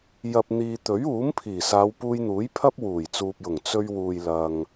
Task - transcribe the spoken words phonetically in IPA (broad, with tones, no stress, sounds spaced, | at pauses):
j ɐ˨ p̚ n̪ iː˨ t̪ ɵ˨˥ ɥ uː˨˥ m pʰ iː˨˩ s aː˨˧ w p uː˧ j n̪ uː˨˥ j pʰ ɐ˥ p̚ w uː˨˩ j t͡s uː˨ p̚ j ʊ˨˩ ŋ t͡s ɵ˧ ɥ w uː˨ j l ɐ˨ ŋ